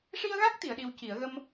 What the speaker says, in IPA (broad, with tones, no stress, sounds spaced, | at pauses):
ʂ i˧ ə̯ ɣ a˦˥ k̚ t̪ i˨˩˦ ə̯ ɗ i˧˥ w c i˨˩˦ ə̯ ɣ ə˧ m